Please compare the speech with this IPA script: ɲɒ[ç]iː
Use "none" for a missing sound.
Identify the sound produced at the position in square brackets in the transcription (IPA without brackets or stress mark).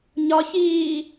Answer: ç